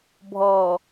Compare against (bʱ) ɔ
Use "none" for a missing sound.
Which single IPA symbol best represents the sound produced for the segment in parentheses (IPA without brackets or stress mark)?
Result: bʱ